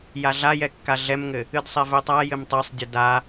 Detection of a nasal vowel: absent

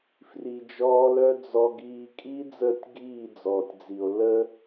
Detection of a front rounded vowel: present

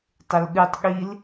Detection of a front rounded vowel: absent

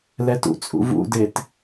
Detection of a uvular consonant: absent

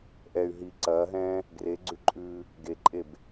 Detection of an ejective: present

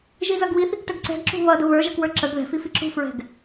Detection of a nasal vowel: absent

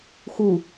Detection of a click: absent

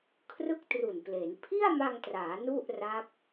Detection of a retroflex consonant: absent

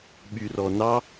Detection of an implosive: present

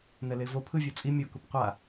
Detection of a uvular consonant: present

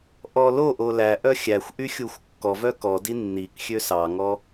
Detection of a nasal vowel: absent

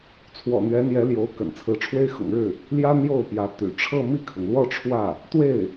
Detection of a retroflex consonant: present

